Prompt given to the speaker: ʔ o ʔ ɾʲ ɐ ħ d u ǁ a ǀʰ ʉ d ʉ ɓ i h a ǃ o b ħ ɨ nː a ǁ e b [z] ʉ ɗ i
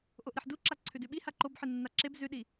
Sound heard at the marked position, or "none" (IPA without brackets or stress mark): z